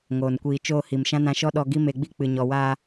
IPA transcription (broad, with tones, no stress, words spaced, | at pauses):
ŋoː˨nkʷiː˨t͡ʃoː˧ hi˨mʃã˦nã˧ʃɔ˦ ɗɔ˧ ɡi˦me˧ɡ͡bi˦ k͡pɨ˨ɲɔ˨waː˧